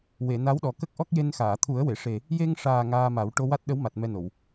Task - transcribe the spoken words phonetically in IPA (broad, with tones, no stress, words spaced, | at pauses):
we˨˩˨ na˧˥wɗɔ˨˩ kə˦˥k̚ ʔɔ˦˥k̚je˧nxaː˨˩˨ t̪ʰu˨˩˦ə̯we˨˩˨ʂe˨˩ | je˧ŋʂaː˨˩ ŋaː˧ma˨˩˦w ʈo˧wa˦˥t̚ɗə˧˥w ma˨˩t̚ mɛ˧no˨˩˨w